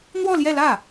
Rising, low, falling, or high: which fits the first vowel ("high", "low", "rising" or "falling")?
falling